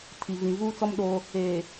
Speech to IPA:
tʰ i˨ v ĩ˨ v uː˦ t͡s ɔ˦ m ɗ o˦ | eː˨

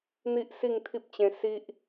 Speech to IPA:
n̪ i˦ ʔ s i˥˧ ŋ t̪ʰ i˦ p̚ t͡ɕ ẽ˧ s i˦ ʔ

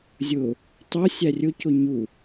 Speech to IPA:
zʲ ʊ | tˤ ʊ sʲ æ rʲ ʊ c ʊ ɲ u

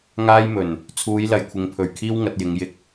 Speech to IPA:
ŋ aː˥ j m ɵ˨˩ n | t͡sʰ uː˨˧ j l ɐ˨ j kʷʰ ɪ˨ ŋ pʰ ɵ˨˩ ɥ kʰ iː˥ w ŋ ɐ˧ t̚ j ɪ˨˧ ŋ j ɪ˧ k̚

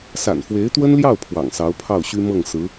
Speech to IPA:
s a̰˨˩ n f w e˧˥ ɪ̯ t̪ w ə˥ n l j ɑ˥˩ ʊ̯ pʰ w ɑ̰˨˩ ŋ s ɑ˧˥ ʊ̯ pʰ ɑ˥˩ ʊ̯ ɕ y˥ m ɤ˥˩ ŋ s ɹ̩˧˥

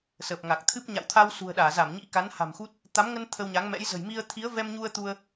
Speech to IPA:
s ə˨˩ p̚ ŋ a˨˩ k̚ t̪ʰ ɨ˦˥ p̚ ɲ a̰˧˨ w t̪ʰ a˧ w s ṳ˨˩ ə̯ ɗ aː˧˩ z a˧˩ m ɲ ḭ˧˥ k a˨˦ n h a̤˨˩ m x u˦˥ t̚ | t̪ a˨˦ m ŋ ə˧ n t̪ʰ ə˧ w ɲ a˨˦ ŋ m ɛ̰˧˥ j z ə̤˨˩ j m i˧ ə̯ t̪ʰ i˨˦ ə̯ v ɛ˧ m ɲ u˧ ə̯ t̪ u˧ ə̯

